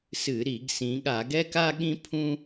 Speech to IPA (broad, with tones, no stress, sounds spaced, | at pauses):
s ɨ˧˩˧ ɾ i˧˩˧ ɡ s ĩ˩˧ ɠ a˧˩˧ ɡ ɛ˥ k a˥ ɠ ĩ˥ pʰ ũ˥